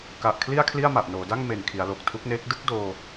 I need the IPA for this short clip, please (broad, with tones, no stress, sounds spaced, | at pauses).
k a˨˩ ʔ kʰ l i˥˩ a̯ kʰ l i˥˩ a̯ m a˨˩ ʔ n oː˩˦ d a˥˩ ŋ m e˨˩ n kʰ i˩˦ a̯ l o˨˩ k̚ tʰ u˦˥ k̚ n eː˦˥ k̚ d ɯ˥˩ k̚ d oː˧